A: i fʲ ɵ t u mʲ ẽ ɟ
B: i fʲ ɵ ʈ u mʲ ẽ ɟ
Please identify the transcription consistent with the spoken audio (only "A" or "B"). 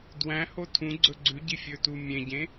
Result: A